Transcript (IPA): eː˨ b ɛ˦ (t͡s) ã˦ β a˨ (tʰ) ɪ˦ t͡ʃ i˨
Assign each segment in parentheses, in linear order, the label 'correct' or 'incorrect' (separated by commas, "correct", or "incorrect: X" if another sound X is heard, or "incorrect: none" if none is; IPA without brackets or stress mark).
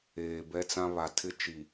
correct, correct